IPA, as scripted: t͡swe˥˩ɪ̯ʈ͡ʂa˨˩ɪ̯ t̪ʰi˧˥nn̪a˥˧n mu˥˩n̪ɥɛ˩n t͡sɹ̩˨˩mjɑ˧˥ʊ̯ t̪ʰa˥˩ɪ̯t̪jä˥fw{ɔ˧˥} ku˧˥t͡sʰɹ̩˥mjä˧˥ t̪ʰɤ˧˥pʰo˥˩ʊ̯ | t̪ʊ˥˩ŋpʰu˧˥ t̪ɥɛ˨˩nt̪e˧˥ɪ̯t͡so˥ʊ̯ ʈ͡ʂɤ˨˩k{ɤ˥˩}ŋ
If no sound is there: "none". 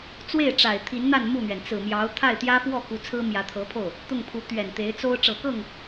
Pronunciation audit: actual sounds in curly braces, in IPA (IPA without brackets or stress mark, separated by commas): ɔ˥˩, ɤ˥˩